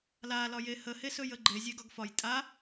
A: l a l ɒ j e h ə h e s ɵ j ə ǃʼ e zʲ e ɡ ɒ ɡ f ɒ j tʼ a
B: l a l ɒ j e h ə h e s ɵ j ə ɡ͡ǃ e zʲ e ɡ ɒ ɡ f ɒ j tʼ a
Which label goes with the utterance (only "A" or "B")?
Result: B